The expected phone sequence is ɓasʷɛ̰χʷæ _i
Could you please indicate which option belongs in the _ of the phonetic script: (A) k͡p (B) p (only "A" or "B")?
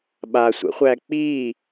A